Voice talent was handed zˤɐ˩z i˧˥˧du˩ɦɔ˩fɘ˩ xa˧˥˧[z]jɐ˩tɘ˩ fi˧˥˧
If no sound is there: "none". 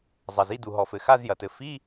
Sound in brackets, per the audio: z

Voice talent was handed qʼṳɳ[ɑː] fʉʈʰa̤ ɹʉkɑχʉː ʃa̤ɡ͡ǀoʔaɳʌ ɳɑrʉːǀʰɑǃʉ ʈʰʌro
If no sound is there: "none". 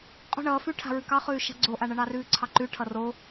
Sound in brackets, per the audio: ʌː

